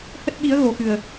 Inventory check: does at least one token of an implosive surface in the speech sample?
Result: yes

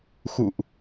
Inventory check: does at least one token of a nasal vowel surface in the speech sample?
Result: no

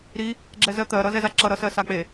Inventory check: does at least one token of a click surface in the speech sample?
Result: yes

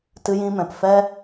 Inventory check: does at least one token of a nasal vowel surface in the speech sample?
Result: yes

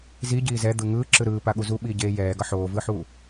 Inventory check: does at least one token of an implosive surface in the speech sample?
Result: yes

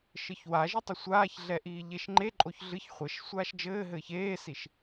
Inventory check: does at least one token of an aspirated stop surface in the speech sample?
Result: no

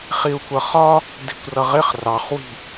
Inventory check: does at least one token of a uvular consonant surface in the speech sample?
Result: yes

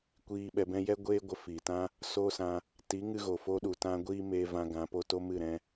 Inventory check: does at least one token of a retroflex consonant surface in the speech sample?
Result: no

